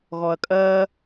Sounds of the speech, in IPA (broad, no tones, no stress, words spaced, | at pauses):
ɣɔɐ̯kʼɜ